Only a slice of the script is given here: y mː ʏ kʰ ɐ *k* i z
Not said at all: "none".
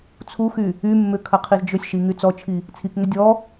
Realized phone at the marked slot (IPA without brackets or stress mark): qʰ